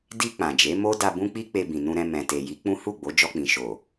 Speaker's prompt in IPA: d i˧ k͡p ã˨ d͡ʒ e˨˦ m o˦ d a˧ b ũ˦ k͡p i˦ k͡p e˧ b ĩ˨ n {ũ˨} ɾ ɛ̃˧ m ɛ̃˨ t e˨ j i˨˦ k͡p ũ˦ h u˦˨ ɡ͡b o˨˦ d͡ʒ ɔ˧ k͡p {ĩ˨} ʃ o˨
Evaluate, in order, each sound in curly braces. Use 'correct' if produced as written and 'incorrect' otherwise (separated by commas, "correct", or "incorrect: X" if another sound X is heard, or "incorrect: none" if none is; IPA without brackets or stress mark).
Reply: incorrect: ũ˧, correct